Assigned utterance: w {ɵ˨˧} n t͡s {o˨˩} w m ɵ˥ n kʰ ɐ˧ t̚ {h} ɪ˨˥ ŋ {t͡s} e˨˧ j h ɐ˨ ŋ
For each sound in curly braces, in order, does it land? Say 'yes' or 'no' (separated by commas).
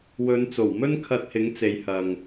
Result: yes, yes, yes, yes